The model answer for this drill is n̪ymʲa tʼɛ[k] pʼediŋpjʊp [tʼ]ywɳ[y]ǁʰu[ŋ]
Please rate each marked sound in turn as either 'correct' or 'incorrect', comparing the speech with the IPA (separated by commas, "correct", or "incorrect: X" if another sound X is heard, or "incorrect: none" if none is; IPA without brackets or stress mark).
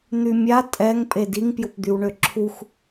incorrect: ŋ, incorrect: d̪, incorrect: ø, incorrect: x